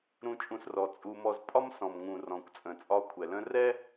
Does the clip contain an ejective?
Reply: yes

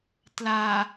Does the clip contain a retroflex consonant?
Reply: no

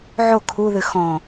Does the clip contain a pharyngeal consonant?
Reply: yes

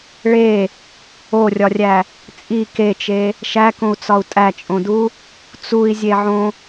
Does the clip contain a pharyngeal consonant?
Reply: yes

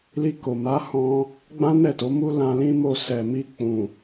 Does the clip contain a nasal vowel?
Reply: yes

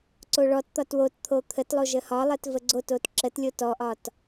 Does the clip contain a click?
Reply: yes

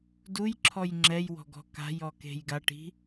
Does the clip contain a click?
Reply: yes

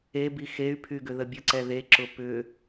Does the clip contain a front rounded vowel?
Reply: yes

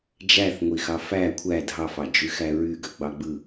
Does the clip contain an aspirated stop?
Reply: yes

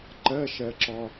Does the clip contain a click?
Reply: yes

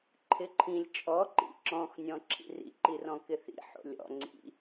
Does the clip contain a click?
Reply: yes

